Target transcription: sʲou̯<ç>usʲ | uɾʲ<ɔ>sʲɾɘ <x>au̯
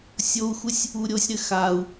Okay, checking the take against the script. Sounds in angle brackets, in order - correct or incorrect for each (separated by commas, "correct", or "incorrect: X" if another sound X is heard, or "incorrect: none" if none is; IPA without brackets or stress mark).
incorrect: x, incorrect: o, correct